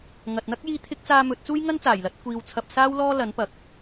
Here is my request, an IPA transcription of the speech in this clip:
ŋ ɐ˨ t̚ n̪ ɐ˥ k̚ j iː˧ t̪ʰ ɪ˥ k̚ t͡s aː˧ m ɵ˨˥ t̚ t͡s uː˥ j ŋ ɐ˥ n t͡s aː˨˩ j l ɐ˨˥ t̚ kʷ iː˧ w t͡sʰ ɐ˧ p̚ s aː˥ w l ɔː˥ l ɐ˨˥ n p ɐ˨˥ k̚

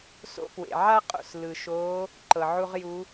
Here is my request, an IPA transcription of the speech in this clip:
s o̰˧ p w ḛ˩ ʕ a˥ qʼ o̰˩ s l ɯ˩ ʃ oː˧˥ | ǃ ɤ˩ ʕ u˥ ʁ j u˧˥

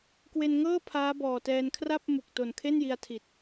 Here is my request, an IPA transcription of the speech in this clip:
k w e˧ n ŋ ɤː˥˩ pʰ aː˦˥ b ɔː˨˩ t ɛː˧ n kʰ r a˥˩ p̚ m u˨˩ k̚ t o˨˩ n kʰ e˥˩ n j i˧ a̯ tʰ i˨˩ t̚

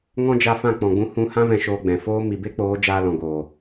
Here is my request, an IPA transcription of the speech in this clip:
ŋ ɔ̃˦ d͡ʒ a˧ f ã˦˨ k͡p ɔ̃˨ ɡ͡b ũ˧ h ũ˧ h ã˦ v ɛ̃˧ ʃ oː˧ ɡ͡b ɛ̃˨ f oː˧ m i˨ b e˦ k͡p oː˨˦ d͡ʒ aː˧ l ɔ̃˨ ɡ oː˨

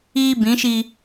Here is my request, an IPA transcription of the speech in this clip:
iː˦ b ĩ˨˦ ʃ i˦

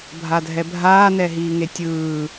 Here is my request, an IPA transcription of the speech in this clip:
bʱ a dʱ ɛ bʱ aː n ɛ ɦ iː ŋ e tʲ ɯː

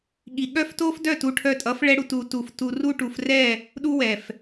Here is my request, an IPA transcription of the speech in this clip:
ɠ i˨ ɠ œ˦ f t o˦ f d œ˦˨ t u˧ ʈʰ œ˧ tʼ ʌ˨˦ f ɭ ɛ˦ ɽ u˧ t u˨˦ t u˨ f t u˧ r u˦ ʈ u˧ f r ɛ˦˨ | ɗ u˦ w ɛ˨ f

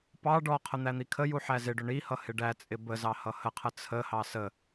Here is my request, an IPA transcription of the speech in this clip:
p ɑ ɖ ɔ qʰ ə n̪ æ n̪ i kʰ ə j u ħ æ z ɪ ɖ ʊ ɳ i h ʌ h ɪ ɖ æ t͡sʼ ɪ b ə z ɑ h ʌ h ə qʰ ə t͡sʰ ə h ɑ s ə

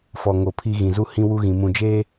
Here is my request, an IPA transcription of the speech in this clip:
f ɔ˨ ŋ o˨ pʰ i˦ ɣ ĩ˨ z u˦ h ĩ˦ w u˦ ɣ ĩ˨ m ũ˨ d͡ʒ eː˦

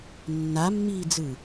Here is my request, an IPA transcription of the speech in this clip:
nː a mː iː d͡z ɯ

